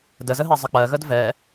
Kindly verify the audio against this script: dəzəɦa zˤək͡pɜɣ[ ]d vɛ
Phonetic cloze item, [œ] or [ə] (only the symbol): ə